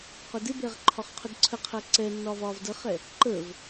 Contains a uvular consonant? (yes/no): yes